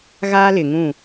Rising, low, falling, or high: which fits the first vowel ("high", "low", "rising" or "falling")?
high